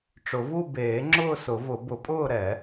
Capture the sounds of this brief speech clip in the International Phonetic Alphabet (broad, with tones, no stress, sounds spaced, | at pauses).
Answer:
ʈ͡ʂ ʊ˨˩˦ v u˥˧ b eː˨˩˦ ŋ͡ǁ ʊː˥˧ s ʊ˨˩˦ v ʊ˨˩˦ b ʊ˨˩˦ pʼ ʊː˥˧ ɾ ɛ˨˩˦